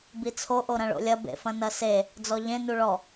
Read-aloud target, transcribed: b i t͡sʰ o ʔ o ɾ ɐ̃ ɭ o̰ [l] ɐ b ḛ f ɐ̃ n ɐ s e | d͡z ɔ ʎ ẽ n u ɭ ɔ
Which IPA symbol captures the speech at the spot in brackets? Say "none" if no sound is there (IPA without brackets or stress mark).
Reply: lʲ